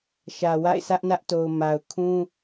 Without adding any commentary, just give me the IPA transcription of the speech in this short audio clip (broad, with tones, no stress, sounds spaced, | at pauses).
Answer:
ʃ ä˨ w a̰˦˨ ɪ̯ sʰ ä˦ ʔ n ä˦ ʔ t o˨ ʊ̯ m a˨ ʊ̯ kʰ ũ˦